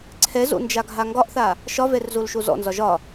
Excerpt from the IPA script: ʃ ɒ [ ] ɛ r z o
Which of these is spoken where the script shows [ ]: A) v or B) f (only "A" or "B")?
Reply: A